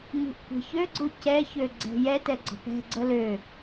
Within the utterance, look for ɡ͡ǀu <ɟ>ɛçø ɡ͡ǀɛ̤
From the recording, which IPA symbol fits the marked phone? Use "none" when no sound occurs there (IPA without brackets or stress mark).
c